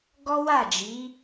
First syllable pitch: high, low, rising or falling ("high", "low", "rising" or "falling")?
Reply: high